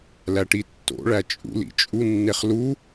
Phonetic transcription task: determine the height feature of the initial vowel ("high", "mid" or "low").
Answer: low